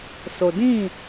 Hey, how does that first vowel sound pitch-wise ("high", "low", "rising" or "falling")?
low